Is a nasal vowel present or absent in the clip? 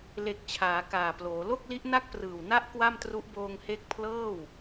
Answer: absent